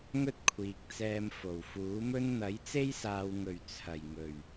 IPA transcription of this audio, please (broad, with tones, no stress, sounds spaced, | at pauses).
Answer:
ŋ ɵ˥ t̚ kʷʰ iː˨ k̚ t͡s ɛː˧ m f o˨˩ w f uː˨˥ m ɵ˥ n n̪ ɐ˨˥ j t͡s e˥ j s aː˨ w ŋ ɵ˨˩ ɥ t͡sʰ ɐ˨˩ j ŋ ɵ˨˩ ɥ